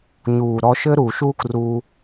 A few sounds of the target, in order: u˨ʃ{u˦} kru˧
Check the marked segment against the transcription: correct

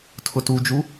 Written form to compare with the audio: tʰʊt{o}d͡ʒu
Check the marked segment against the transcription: incorrect: u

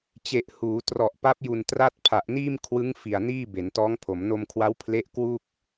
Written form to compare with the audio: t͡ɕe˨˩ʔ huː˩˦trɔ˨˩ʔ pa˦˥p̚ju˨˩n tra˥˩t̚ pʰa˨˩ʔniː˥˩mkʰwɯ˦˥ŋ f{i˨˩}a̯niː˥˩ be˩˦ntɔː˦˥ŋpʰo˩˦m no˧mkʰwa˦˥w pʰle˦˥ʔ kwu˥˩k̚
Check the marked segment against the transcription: correct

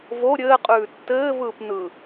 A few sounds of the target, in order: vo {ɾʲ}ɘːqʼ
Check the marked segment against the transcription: correct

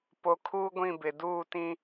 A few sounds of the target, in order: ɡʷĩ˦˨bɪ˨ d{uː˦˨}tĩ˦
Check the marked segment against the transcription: correct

